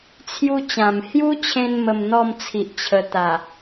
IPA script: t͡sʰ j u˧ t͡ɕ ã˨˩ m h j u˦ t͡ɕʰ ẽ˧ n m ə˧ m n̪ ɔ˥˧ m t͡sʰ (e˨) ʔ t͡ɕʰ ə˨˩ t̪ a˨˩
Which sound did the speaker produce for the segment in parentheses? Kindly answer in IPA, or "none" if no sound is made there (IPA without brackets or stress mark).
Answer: i˨